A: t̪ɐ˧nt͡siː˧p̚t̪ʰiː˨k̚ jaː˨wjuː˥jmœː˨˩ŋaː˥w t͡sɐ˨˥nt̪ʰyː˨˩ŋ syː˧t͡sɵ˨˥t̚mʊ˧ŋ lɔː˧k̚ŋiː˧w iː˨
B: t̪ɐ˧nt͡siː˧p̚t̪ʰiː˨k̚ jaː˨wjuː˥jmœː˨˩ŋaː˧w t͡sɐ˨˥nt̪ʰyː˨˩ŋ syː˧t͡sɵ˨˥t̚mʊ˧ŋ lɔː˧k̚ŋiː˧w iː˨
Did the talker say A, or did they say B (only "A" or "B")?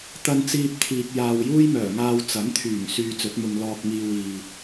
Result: B